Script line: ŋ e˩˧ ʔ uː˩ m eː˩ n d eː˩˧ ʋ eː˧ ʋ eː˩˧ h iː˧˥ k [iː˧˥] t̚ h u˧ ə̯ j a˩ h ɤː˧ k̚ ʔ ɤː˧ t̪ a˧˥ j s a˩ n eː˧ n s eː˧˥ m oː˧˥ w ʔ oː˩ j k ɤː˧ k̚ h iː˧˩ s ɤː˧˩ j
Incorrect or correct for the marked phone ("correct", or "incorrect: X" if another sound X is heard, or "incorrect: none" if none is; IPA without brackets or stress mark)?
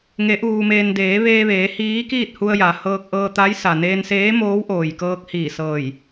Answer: incorrect: iː˥˨